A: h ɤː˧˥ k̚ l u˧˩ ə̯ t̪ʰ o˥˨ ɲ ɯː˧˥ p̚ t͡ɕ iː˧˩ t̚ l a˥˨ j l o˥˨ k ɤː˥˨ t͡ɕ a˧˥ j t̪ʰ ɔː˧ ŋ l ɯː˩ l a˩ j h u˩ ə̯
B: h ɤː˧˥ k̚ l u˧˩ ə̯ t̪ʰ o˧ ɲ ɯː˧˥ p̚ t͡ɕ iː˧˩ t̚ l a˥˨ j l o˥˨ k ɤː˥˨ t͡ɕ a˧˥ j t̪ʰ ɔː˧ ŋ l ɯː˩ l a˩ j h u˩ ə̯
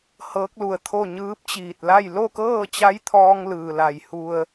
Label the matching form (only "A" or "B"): A